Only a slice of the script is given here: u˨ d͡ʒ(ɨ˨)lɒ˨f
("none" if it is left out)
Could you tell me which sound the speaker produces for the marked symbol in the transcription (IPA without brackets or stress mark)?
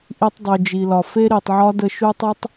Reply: i˨